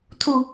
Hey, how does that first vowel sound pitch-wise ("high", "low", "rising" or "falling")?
low